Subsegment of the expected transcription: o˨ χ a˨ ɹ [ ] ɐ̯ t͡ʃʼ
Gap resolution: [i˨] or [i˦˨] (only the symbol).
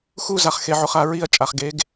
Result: i˦˨